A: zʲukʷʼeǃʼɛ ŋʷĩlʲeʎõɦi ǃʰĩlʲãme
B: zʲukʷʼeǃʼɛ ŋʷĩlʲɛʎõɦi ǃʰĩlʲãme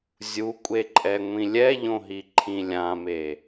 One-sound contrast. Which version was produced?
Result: B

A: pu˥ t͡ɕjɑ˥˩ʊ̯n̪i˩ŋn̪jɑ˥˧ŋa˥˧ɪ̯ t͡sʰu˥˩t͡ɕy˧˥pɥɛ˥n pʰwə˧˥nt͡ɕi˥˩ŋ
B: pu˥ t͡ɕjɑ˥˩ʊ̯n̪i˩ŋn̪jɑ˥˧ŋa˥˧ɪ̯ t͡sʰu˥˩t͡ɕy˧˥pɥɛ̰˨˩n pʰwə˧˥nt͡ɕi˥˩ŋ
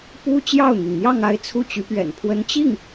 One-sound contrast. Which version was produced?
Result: B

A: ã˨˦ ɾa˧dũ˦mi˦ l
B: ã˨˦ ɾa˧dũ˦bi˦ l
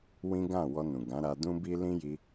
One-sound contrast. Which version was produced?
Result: B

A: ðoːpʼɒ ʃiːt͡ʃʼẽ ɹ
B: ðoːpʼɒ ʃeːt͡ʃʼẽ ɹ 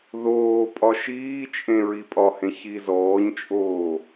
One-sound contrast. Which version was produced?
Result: A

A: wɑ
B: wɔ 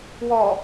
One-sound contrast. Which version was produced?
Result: B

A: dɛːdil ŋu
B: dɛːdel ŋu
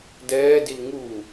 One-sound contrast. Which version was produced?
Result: A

